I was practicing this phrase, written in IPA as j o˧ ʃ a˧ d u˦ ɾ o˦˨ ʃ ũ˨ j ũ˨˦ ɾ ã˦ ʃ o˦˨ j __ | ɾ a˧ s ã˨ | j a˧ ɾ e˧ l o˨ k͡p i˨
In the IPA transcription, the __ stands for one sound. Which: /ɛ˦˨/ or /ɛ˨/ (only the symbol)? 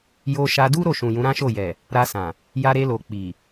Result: ɛ˨